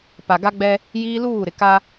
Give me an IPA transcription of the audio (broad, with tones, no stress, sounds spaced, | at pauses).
p a˨ ɡ a˦ ɡ͡b ɛ˦ | j iː˦ l uː˦˨ ɾ ɪ˨ k a˦